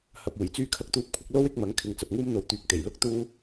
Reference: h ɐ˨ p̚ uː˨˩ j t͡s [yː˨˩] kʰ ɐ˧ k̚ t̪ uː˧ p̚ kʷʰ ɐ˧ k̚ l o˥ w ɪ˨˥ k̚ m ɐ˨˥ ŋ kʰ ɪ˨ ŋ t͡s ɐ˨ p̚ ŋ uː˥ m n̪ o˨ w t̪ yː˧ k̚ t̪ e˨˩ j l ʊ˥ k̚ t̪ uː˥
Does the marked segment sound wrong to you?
yes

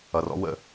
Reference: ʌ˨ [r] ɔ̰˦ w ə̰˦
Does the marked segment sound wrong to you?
no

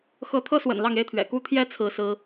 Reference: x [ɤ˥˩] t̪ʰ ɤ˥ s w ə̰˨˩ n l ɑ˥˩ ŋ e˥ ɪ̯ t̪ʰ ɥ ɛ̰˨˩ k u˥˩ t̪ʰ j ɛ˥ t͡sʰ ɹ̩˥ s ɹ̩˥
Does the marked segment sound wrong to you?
yes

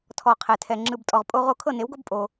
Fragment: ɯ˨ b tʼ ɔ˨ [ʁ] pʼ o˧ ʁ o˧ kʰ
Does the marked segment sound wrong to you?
no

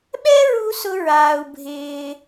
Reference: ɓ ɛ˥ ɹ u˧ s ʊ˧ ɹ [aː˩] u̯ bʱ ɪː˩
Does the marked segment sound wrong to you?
no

